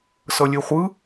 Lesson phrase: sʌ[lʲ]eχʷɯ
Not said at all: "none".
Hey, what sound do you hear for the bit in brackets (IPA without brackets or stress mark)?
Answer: lʲ